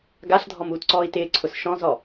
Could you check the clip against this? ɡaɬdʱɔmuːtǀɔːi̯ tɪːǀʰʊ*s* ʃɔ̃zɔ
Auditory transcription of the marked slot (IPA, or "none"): s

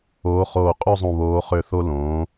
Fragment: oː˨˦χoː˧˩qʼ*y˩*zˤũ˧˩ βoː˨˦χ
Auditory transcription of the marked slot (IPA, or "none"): y˥˨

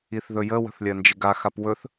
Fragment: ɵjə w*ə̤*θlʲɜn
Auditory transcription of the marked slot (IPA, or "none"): ə̤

